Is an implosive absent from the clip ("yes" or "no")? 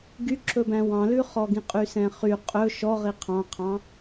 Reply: yes